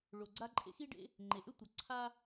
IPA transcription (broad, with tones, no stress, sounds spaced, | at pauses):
ɭ o˩ ɡ͡ǀ a˥ ǃʼ ḛ˥ x i˥ ɖ ḛ˥ | ŋ͡ǃ e˩ ʔ ø˥ tʷ a˩ ǀʰ a˥